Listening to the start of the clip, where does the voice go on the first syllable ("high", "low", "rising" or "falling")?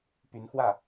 rising